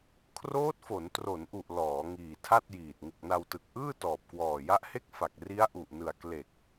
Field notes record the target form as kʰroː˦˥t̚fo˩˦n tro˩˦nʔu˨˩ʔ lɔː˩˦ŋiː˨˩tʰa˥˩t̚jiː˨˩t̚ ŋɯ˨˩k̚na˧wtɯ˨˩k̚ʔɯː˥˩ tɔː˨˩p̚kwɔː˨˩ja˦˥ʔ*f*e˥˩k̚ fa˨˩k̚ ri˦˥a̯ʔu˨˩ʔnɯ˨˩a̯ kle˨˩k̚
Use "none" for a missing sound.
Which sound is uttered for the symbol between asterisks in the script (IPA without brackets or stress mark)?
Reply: h